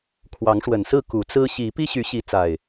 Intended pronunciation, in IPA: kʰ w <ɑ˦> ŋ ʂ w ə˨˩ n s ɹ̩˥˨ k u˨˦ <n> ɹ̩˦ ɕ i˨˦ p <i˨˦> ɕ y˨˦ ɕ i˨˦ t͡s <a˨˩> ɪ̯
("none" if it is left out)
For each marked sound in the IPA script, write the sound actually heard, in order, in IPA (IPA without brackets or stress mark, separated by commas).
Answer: ɑ˨˦, t͡s, i˦, a˨˩